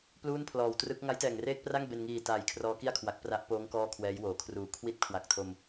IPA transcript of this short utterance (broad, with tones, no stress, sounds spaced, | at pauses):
p l uː˥˩ n pʰ l ɔː˨˩ w t r ɯ˦˥ k̚ ŋ a˦˥ j t ɛː˨˩ ŋ r eː˥˩ k̚ p r a˥˩ ŋ b e˧ n ŋ iː˨˩ t aː˨˩ j kʰ r ɔː˦˥ k i˥˩ a̯ kʰ w a˨˩ k̚ p r a˦˥ ʔ p oː˦˥ ŋ k ɔː˥˩ kʰ w ɛː˦˥ j w oː˩˦ kʰ r uː˩˦ kʰ w i˦˥ t̚ kʰ w a˨˩ k̚ tʰ o˧ m